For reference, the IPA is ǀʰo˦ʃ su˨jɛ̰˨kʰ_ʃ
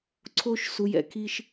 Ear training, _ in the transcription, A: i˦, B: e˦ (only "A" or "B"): A